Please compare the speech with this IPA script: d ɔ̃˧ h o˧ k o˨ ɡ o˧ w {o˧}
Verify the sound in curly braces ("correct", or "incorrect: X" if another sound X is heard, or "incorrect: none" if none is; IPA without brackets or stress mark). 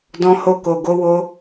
correct